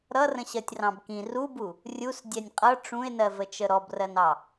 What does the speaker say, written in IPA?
ɾʌrə̃ɕɜtʲ rɑ̃bkĩ rubu | rʲus dʲɛnʲqʼʌ ʈ͡ʂũe̯nɜvə t͡ʃəɾɔbrɜnɑ

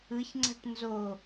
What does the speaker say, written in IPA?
ɯçŋ͡ǀa̤ʈ nzo

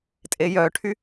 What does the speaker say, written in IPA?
tʼejœʈʰy

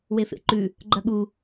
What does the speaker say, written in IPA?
wefḛǃʉ | ɡ͡ǃɐɠu

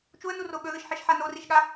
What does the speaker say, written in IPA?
t͡ʃuə̯nuro ɠɵðɨʃħiʃħa noriʃɠa

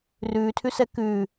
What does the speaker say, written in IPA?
rʉːtʰʉsɛ kʉː

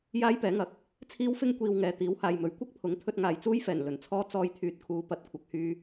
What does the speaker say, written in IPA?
jaː˥jpɛː˨˥ŋɐ˨˥k̚ | t͡sʰiː˥wfɪ˥ŋ kʷiː˧wŋɛː˨˧ t̪iː˨˥whaː˨jmɵ˨˥ɥ kʷɐ˥k̚pʰʊ˨˥ŋ t̪ʰɵ˧t̚ŋaː˨jt͡suː˥jfɛː˨˩n lɵ˨˩nt͡sʰɔː˥ t͡sɔː˧jt̪ʰyː˨t̚kʰuː˨˧ pɐ˨˥t̚kʷʰɐ˨˥k̚hyː˧

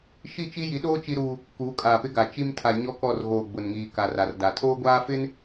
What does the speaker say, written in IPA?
ʃi˦˨t͡ʃi˦ji˨˦ɗoː˦ t͡ʃi˦ɾuː˦ | kuː˨˦kʼaː˨pɪ˦ɡa˨ t͡ʃi˦mtʰa˨ ɲɔ˦kɔ˦˨r ɣoː˨ ɡ͡bʊ˨nŋiː˨ ka˨ra˨rda˨ tʰoː˦ɡʷaː˦fɪ˦n

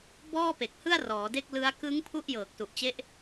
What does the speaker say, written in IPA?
bɔː˥˩pe˨˩k̚hɯ˥˩a̯ rɔː˩˦de˥˩k̚ lɯ˦˥a̯ kɯ˦˥ŋ pʰu˥˩ʔjɤː˨˩k̚su˨˩ʔt͡ɕe˦˥ʔ

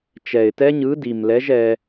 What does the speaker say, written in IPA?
t͡ʃɛ˨˩ɪ̯tɛ˦˥ ɲɯ˨˥di˨˩m lɛ˨˥ʒ ɛ˧

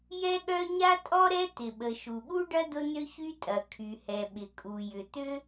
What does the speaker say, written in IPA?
jɛ˥ɠœ˥ ɲa˥tʼɔ˥ɾɛ˥ t̪ɪ˩ɓə˩ ʃu˩ɠu˥ɖɐ˥ dʊ˥nʏ˥çy˥tʼɐ˩ kʰy˩hɛ˩ ɓɪ˩kʼu˩jʏ˩t̪ʏ˥

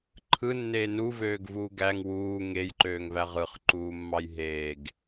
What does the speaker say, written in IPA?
ǃʰɯnːeː nuvøːɡvuː ɡæŋ wuː ŋejǃøːŋvæ ʁɯχǃuːmːɑj ɦeːɡ

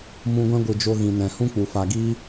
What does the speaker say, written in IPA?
mũ˧ɡʷɛ̃˦ ɡʷɨ˨d͡ʒo˧ ɣĩ˨nɛ̃˨ hũ˦k͡pu˨ fa˨ɡiː˦

